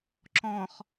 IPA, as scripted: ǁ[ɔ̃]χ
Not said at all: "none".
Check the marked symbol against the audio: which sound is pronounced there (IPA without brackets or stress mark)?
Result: ɔ̃